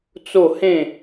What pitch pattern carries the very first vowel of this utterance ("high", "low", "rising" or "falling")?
falling